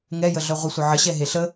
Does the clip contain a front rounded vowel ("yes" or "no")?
yes